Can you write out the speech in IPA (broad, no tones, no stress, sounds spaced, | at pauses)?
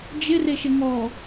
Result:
d͡ʒ ɪ r e ʃ ɪ ŋ ɔ